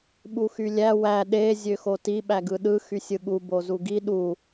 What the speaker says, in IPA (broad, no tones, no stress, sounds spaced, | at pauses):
ɓ u x y lʲ æ w æ ɗ e zʲ ø x o t i ɓ æ ɡ ɯ ɗ ɯ x y sʲ ɯ ɠ u b o z u ɡ i ɗ u